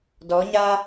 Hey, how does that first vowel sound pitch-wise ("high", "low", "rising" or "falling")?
rising